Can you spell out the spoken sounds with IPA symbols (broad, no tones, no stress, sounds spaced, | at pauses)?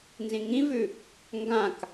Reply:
n z ĩ ŋ ĩ v ʉ | ŋ ɡ ã k